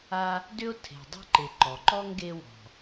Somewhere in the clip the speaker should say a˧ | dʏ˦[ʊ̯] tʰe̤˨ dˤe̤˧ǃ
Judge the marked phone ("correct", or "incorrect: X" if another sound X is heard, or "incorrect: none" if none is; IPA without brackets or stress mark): correct